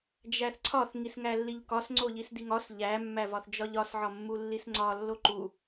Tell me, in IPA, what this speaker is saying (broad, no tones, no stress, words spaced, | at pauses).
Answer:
d͡ʒæθǀʰɒθ ŋisŋælːiʎkɒs ŋ͡ǀoʎisdiŋɒs ʎæ mːævɒθd͡ʒɒʎɒs ʕɒmːulːisŋ͡ǀɒ lːoǃu